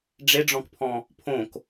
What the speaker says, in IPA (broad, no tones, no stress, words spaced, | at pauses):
ɖ͡ʐeɖ͡ʐɔ̃kpʰɔ̃ | pʰõk